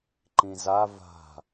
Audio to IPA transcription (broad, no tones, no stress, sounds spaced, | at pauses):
ǃ ĩ z a v a̤